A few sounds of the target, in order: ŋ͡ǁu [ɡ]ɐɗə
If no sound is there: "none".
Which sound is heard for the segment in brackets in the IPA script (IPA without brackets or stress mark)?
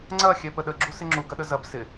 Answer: ɡ